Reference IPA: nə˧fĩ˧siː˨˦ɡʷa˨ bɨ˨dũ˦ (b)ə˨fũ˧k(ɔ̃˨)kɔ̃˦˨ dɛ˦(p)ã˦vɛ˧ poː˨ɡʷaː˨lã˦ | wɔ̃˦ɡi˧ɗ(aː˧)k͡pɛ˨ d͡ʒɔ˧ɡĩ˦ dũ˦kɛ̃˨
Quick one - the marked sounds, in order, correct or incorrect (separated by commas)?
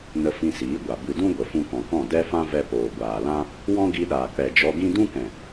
incorrect, correct, incorrect, incorrect